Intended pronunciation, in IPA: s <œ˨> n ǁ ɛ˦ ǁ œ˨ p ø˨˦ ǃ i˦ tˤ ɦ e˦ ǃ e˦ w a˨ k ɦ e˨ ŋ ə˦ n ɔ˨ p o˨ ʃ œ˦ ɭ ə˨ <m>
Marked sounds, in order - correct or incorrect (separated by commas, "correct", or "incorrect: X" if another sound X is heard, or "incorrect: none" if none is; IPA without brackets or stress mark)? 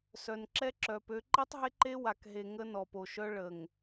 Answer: correct, incorrect: ŋ